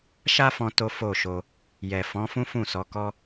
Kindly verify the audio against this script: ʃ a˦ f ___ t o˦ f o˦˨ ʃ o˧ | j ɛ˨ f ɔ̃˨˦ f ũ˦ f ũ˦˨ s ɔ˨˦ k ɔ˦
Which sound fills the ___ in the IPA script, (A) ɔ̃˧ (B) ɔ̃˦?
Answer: A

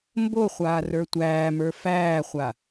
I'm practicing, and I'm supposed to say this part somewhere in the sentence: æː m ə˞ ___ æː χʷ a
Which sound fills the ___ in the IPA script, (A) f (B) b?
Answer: A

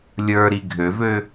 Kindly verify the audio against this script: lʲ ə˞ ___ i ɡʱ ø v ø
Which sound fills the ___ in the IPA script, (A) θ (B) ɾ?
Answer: B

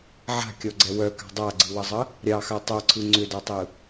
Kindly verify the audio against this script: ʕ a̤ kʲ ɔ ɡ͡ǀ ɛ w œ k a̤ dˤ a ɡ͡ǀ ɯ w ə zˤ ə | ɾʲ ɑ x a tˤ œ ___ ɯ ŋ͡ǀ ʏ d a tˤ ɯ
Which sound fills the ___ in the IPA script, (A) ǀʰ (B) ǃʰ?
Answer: A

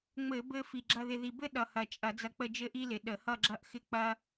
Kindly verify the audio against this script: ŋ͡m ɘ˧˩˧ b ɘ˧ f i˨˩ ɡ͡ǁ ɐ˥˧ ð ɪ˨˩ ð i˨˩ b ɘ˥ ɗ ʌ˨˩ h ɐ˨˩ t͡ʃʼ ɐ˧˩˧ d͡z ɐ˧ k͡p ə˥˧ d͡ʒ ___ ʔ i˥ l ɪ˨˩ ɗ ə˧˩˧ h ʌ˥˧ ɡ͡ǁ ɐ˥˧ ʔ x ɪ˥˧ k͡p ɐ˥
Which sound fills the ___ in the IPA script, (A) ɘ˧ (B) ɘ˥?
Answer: B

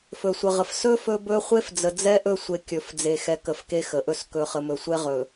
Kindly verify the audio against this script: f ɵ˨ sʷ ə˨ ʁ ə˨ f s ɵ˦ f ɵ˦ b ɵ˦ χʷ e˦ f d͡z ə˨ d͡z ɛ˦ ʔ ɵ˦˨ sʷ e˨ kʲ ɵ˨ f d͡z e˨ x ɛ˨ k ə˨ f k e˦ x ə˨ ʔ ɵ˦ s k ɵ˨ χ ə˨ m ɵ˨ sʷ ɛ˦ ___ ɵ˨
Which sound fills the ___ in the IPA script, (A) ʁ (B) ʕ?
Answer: A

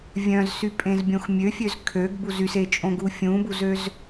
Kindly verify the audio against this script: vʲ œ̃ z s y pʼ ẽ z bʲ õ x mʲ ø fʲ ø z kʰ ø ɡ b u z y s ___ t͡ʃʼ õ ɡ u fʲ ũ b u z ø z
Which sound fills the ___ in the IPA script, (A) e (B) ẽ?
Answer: A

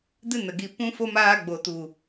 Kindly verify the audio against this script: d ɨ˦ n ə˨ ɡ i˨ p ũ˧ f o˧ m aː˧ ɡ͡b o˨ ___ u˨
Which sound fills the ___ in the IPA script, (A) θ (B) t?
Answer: B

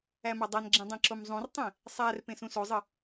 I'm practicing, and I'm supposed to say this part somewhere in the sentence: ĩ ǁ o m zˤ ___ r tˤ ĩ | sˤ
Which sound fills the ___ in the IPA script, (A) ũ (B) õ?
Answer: A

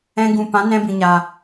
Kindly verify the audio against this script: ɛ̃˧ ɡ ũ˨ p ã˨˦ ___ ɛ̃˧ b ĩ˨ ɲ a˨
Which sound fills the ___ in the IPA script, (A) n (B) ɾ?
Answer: A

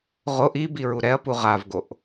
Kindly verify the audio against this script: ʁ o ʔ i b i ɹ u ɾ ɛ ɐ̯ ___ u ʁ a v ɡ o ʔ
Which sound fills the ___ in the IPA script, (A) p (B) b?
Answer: A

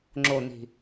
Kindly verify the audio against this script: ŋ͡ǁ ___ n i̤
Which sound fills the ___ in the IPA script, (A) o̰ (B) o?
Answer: B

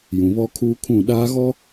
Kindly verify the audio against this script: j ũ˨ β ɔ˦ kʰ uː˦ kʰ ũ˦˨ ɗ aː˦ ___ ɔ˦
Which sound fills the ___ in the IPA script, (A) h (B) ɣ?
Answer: B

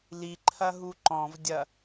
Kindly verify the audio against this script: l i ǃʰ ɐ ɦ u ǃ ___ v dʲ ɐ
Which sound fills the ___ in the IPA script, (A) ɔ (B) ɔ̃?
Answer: B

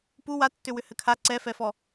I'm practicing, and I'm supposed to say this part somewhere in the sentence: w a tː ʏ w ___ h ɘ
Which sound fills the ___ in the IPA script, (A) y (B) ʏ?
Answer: B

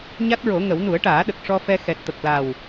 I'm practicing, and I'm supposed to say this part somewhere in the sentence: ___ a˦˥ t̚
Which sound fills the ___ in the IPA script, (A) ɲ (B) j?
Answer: A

